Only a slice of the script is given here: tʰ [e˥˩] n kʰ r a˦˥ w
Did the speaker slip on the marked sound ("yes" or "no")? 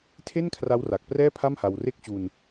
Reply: no